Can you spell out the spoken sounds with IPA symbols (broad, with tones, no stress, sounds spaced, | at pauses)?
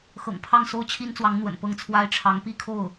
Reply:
x ɤ̰˨˩ ŋ pʰ ɑ˥˩ ŋ s o˥ ʊ̯ t͡ɕʰ i˥ n t͡s w ɑ˧˥ ŋ n̪ w ə̰˨˩ n p ɤ˥˩ ŋ t͡sʰ w a˥ ɪ̯ ʈ͡ʂʰ ɑ˧˥ ŋ p i˥˧ kʰ o˥˩ ʊ̯